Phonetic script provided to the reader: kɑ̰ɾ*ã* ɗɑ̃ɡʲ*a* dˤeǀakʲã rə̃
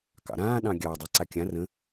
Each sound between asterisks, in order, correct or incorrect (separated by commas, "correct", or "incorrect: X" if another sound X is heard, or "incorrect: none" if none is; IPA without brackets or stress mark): incorrect: ãː, incorrect: ɑ